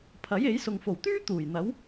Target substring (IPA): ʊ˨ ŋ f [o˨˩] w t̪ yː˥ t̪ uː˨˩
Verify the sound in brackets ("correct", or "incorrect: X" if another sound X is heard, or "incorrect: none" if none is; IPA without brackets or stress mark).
correct